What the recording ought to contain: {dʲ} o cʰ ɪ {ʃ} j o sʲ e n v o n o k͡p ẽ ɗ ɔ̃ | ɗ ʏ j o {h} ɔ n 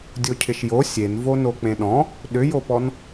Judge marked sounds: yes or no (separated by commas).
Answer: yes, yes, no